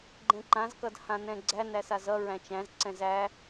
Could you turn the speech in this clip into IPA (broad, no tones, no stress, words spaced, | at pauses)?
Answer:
ɡ͡ǃɛ̃ǃãz kʌdhãnɛ̃ɡ͡ǀæ næsazʌ ɹæ̃t͡ʃæ̃z ǀɛ̃zæ